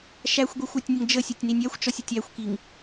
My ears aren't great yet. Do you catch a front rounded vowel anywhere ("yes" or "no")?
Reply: no